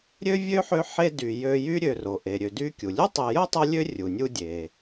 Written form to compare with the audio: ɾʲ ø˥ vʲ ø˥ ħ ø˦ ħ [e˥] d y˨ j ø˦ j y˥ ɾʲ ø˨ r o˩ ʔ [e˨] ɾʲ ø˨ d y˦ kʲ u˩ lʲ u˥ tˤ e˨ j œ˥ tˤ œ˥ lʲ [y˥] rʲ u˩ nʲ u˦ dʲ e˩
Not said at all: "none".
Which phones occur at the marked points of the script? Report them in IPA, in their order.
e˦, e˩, ø˥

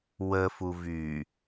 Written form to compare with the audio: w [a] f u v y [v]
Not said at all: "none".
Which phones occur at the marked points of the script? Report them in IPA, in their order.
ə, none

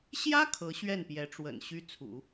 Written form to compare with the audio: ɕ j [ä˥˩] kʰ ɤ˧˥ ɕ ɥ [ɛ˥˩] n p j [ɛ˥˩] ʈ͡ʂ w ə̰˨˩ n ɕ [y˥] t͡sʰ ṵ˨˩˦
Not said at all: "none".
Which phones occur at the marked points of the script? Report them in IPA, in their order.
ä˥, ɛ˥˩, ɛ˧˥, y˥

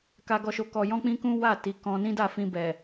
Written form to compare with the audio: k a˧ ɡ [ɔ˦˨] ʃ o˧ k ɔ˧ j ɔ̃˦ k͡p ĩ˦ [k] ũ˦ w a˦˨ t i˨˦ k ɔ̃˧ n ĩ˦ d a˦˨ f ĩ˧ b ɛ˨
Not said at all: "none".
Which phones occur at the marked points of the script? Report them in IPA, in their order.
ɔ˧, k

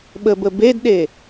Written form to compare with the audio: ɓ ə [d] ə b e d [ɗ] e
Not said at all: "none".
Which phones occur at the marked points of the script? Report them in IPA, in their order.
b, ɗ

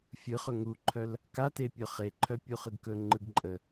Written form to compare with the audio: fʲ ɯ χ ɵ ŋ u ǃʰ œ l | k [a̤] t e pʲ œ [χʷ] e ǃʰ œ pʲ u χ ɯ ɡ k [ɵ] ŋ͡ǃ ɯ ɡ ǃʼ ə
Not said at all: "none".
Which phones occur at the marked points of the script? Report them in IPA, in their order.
a, χ, ɵ

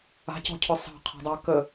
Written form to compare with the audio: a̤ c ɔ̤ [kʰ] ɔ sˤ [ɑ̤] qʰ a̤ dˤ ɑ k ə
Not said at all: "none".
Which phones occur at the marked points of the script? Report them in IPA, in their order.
cʰ, ɑ̤

